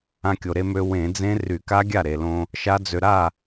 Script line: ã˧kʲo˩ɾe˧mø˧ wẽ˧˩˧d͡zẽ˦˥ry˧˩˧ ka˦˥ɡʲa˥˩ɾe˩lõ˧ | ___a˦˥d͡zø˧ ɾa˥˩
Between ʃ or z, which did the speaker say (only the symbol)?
ʃ